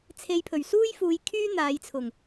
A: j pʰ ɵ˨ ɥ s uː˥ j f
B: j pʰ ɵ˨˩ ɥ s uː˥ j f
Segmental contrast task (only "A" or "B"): B